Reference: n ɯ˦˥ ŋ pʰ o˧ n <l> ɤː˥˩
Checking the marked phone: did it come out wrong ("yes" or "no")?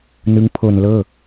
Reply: no